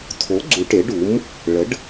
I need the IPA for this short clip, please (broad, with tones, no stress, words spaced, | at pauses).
tʰo˩˥ ɡ͡ǀu˩˧ ʈe˩˥ɖu˩˥m | ɭə˩˥ɖ